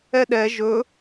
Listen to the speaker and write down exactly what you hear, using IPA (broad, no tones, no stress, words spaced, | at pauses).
ɛɗɛ ʒɵ